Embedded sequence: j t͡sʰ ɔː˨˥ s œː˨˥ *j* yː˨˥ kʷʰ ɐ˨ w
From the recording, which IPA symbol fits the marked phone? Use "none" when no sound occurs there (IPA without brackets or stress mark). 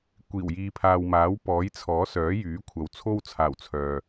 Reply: j